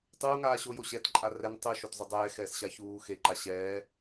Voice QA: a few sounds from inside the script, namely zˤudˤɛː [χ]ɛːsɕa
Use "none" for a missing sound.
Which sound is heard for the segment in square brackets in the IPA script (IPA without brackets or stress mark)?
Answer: x